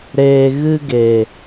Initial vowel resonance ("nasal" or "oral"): oral